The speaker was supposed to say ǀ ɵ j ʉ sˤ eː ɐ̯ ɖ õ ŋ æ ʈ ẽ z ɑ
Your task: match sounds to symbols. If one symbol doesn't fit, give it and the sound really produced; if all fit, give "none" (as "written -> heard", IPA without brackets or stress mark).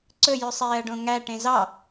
none